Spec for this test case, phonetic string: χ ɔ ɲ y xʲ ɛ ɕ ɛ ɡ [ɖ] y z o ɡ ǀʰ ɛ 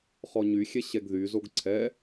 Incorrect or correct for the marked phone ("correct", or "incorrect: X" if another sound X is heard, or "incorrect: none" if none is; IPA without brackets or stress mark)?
incorrect: ð